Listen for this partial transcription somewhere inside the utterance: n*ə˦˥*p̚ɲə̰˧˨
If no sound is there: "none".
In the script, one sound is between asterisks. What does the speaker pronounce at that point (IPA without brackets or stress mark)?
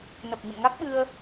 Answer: ə˨˩